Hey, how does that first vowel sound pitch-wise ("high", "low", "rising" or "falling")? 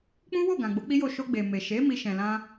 high